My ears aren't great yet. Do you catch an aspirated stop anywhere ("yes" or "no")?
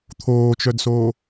yes